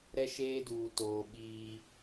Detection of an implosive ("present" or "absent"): present